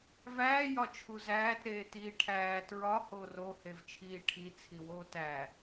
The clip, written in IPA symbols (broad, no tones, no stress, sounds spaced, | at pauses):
v æː j ɒ t͡ʃʰ u z æː t ɾ eː t iː ʈʰ æː t ɹ ɒ h o r o h e v t͡ʃʰ iː ʈʰ i t͡sʰ i w oː t æ